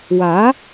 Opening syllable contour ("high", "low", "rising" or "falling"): rising